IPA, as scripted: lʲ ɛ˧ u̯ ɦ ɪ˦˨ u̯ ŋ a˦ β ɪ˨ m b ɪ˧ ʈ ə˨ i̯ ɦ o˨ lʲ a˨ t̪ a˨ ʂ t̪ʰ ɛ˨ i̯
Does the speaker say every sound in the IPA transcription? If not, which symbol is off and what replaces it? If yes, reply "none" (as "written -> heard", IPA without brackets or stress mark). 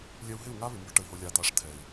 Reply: none